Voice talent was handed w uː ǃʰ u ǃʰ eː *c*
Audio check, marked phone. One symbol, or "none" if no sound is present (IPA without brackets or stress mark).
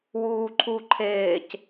c